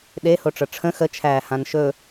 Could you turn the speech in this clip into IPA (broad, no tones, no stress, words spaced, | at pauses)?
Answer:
ɗehoʈ͡ʂɤ ʈ͡ʂʰə̃ xət͡ʃʰæːhãn ʃɵ